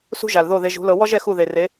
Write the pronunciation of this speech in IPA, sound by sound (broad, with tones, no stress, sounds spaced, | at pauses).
s ṳ˦ ʒ a˨ l ð o˦˨ ð e˧ ʒ ṳ˨˦ l ɤ˧ w ɔ˦ ʒ ɛ˧ x u˦˨ ð e˨ r e˨˦